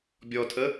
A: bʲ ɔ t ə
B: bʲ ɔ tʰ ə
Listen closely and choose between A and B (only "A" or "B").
B